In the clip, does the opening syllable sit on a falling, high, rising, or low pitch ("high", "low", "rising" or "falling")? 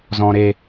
high